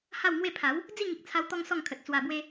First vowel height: low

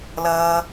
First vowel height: mid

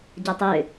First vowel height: low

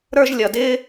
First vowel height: mid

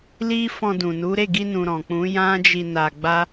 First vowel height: high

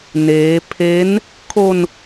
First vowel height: mid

